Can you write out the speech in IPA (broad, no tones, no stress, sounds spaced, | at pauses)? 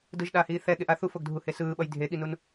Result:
d ɯ ʒ ɗ aː h iː θ ɛ ɠ e ʔ a θ u f o ɡ dʱ u h e s ɯː ɓ ʌ j dʱ e ɠ i n u n